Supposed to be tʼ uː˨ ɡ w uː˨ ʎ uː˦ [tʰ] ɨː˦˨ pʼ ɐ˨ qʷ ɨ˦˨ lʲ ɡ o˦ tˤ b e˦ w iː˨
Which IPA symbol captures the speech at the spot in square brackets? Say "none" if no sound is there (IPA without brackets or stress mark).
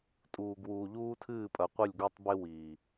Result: tʰ